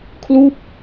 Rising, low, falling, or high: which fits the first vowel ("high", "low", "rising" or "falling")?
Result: falling